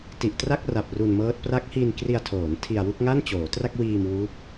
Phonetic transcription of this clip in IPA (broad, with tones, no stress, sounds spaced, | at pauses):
t i˨˩ ʔ t r a˥˩ k̚ r a˨˩ p̚ r u˧ n m ɤː˦˥ t̚ p r a˦˥ k̚ h i˧ n k r i˧ a̯ tʰ oː˩˦ n tʰ i˧ a̯ w u˥˩ k̚ ŋ a˥˩ n t͡ɕ oː˩˦ t r a˥˩ k̚ w iː˧ m w u˦˥ k̚